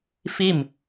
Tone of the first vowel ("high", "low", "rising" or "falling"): falling